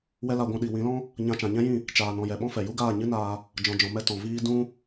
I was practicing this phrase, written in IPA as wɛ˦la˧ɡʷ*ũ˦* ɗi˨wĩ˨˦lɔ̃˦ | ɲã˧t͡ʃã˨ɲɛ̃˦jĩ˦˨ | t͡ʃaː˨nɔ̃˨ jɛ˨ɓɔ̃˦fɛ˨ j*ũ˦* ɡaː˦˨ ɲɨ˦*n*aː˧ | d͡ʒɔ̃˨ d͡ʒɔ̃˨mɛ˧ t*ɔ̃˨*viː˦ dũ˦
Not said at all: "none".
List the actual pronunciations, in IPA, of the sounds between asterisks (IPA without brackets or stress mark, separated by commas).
ũ˧, u˦, n, ɔ̃˨